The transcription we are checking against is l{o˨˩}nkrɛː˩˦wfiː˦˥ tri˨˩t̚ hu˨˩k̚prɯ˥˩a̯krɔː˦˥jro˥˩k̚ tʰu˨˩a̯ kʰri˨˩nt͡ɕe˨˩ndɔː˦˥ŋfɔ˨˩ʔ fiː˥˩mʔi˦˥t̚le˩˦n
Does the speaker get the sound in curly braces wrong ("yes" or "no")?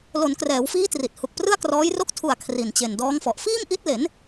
yes